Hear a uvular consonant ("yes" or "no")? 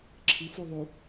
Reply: no